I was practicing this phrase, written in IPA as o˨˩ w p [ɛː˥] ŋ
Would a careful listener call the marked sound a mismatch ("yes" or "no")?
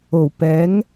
yes